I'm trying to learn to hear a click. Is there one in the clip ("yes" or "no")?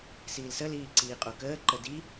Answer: yes